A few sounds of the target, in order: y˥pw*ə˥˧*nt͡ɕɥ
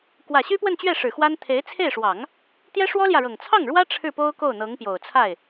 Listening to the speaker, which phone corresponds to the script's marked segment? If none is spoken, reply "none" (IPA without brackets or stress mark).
ə˥˧